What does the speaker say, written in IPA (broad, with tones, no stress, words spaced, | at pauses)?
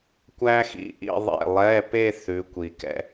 kʷæ˥xḭ˨˥ʔḭ˥˧ðˤḛ˥˩ lˠɛ˧˥˧pe˥˧ θʉ˨˥kʷi˨kɛ̰˥